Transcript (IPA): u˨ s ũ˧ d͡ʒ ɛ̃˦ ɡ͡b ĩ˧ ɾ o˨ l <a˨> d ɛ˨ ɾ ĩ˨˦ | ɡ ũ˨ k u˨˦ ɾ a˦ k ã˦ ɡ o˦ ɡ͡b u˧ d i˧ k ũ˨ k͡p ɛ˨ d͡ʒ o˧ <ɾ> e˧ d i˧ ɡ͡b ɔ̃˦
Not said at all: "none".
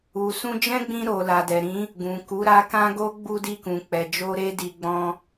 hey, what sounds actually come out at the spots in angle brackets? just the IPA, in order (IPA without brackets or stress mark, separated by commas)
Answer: a˨, ɾ